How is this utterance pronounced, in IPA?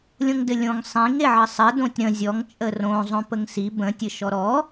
lʲõŋdɘlʲõŋ sˤĩŋ eʕəsˤɘ dõtʲɾə̃ zʲɔŋ t͡ʃʼərõ zˤõpəŋsi bə̃ tʲɘʃɔɾɔ

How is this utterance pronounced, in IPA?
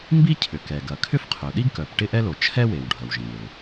mbi˥ cʰʏ˩kɛ˩ ɡɐ˩kʰʏ˥fqʰœ˩ ɗi˥ɡkœ˩p ʈɪ˥ʔɛ˥lo˩ t͡ʃʰɛ˥we˩w ɖʱɐ˩wʒẽ˩lɪ˩

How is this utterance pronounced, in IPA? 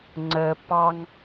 ŋ͡ǀə pɑŋ

